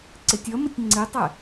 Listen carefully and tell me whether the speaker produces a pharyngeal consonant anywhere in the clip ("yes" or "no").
no